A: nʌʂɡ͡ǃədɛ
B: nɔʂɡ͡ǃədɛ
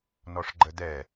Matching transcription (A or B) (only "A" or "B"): B